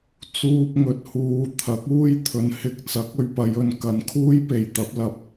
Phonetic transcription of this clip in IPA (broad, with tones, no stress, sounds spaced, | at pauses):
t͡s uː˥ p̚ ŋ ɵ˧ t̚ h uː˧ t̪ʰ ɐ˨˥ k̚ uː˥ j t̪ʰ ɵ˨˥ n h ɪ˧ k̚ t͡s ɐ˨˥ k̚ ɵ˧ ɥ p ɐ˨˧ j ɵ˨ n k ɐ˨˥ n kʰ uː˥ j p e˨˩ j t̪ ɐ˨˥ p̚ l ɐ˧ p̚